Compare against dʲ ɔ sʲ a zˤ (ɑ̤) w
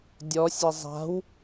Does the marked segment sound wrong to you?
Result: yes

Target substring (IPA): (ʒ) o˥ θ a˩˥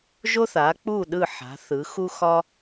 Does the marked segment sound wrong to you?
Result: no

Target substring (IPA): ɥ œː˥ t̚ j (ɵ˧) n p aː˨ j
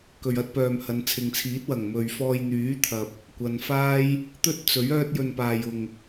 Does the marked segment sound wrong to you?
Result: no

